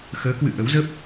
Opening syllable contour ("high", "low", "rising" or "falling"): rising